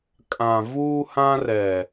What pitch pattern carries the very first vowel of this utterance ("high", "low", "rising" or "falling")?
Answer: low